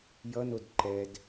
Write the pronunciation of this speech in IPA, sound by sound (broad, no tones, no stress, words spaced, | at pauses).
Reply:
jʌnod ǃɛd